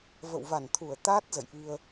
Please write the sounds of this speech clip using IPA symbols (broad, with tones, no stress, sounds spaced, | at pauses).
v ə̰˧˨ w v a˧˩ n t̪ʰ u˧˩ ə̯ t̪ a˦˥ t̚ z ə̰˧˨ j ʔ i˧ ə̯